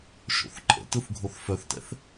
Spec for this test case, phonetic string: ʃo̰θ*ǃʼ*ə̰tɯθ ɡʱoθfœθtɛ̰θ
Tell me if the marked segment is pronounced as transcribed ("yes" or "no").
yes